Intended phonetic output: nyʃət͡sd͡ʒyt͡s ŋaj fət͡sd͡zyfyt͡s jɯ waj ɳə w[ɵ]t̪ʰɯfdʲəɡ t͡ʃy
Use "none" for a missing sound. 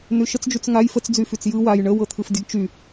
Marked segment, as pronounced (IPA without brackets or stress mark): ɤ